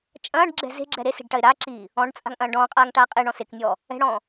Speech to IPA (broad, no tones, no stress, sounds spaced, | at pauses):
t͡ʃʼ ɐ̃ː ɖ ɡ͡ǁ ɛ̤ z e̤ ɡ͡ǁ ɛ ɾ e s e̤ ɖ ʈ ɐ ɪ̯ ɾ a ǁ iː | ɔ̃ ɖ t͡sʼ a̤ ŋ ʔ ɐ̃ː ɖ ɔ̃ː qʼ aː ŋ ʈ aː qʼ e ɳ ɔ̃ s e k nʲ ɔː | ɛ̤ ɽ ɔ̃ː